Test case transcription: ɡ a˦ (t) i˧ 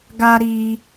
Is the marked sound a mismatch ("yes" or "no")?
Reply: yes